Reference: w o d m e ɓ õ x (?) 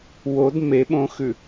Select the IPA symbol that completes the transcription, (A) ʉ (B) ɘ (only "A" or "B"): A